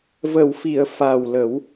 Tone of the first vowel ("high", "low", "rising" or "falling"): low